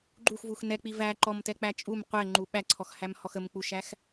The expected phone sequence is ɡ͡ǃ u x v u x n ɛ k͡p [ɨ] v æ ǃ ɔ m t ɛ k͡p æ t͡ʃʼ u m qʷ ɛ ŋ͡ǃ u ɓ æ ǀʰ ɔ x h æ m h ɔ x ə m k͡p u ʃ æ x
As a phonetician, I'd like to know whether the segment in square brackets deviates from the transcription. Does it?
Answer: yes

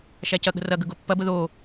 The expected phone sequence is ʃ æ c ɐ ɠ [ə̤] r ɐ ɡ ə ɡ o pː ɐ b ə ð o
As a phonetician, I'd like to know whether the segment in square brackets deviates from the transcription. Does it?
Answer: no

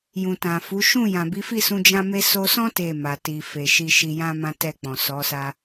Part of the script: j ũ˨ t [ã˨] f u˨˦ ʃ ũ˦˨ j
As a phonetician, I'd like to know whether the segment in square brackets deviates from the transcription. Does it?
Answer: no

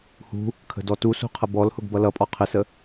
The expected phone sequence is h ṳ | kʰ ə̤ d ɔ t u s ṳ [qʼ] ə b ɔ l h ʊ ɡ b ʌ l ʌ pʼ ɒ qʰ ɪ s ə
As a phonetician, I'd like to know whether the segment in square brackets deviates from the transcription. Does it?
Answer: yes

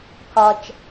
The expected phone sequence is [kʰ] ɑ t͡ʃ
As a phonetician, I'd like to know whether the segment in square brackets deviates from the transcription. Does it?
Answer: no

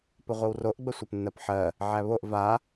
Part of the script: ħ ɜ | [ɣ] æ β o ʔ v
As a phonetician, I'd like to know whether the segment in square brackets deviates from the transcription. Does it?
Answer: yes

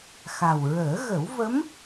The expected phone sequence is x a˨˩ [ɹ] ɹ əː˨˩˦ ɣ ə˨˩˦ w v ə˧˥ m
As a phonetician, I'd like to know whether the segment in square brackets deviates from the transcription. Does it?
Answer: yes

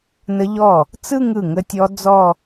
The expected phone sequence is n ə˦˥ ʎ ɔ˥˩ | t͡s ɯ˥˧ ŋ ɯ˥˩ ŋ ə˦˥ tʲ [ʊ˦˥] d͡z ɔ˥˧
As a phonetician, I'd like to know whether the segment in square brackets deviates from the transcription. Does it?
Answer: yes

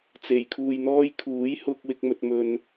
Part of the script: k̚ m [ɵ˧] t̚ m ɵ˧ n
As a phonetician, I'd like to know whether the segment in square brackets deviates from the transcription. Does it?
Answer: no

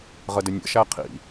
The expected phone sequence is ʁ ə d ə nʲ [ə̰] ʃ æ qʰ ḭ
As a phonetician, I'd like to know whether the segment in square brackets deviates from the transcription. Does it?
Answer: no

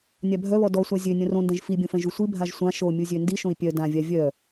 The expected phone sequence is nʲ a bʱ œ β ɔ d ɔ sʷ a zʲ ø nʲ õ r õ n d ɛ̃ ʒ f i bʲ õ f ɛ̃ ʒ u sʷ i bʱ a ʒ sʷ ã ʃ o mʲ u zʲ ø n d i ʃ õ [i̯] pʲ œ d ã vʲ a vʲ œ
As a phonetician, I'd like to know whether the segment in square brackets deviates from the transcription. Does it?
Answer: no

